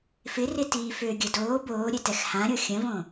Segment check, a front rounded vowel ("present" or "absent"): present